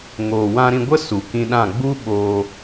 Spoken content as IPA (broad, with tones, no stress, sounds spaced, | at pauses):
ŋ oː˨ w ã˧ ɾ ĩ˧ ɡʷ ə˦ s u˨ k ĩ˧ ɗ ã˦˨ ɡ͡b u˦ ɓ oː˧